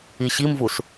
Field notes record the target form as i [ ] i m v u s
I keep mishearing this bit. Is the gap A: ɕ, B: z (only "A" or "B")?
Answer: A